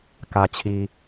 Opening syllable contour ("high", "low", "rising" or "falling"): low